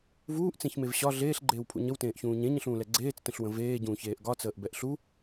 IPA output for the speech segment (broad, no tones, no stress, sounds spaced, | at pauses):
v uː ʔ t͡s ẽ ç m e v ɕ ɒ ɮ eː ɬ ɡ͡ǃ eː w pʰ ṵ ɲ ə w t ẽː ʔ ç ũː ɲ ẽ ɲ ə̃ ɬ ũː l ɛ ɡ͡ǀ eː t͡s t ə̃ ɬ w ə̃ v eː ɟ ũː ç eː ʔ ɡ ɒ t͡s əː ʔ b ɛ ʔ ɬ u